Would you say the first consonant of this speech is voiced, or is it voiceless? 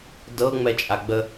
voiced